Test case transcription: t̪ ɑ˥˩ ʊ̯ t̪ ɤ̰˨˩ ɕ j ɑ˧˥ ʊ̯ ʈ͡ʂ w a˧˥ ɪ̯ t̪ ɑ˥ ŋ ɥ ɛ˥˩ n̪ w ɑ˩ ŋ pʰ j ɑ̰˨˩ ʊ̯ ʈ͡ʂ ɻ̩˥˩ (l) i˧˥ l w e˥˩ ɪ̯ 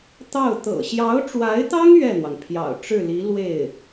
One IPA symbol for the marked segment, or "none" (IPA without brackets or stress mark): l